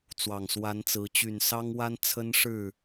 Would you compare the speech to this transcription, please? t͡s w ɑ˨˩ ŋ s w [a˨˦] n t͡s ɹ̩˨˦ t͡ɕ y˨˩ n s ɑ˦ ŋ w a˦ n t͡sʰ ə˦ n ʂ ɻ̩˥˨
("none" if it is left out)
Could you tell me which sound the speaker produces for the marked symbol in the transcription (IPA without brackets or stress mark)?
a˨˦